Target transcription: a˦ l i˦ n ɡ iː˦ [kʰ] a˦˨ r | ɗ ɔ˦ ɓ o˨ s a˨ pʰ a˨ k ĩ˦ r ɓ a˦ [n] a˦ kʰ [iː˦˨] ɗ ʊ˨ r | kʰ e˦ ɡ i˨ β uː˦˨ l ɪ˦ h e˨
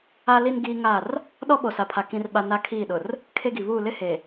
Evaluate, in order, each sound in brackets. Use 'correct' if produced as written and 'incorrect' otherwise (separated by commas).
incorrect, correct, correct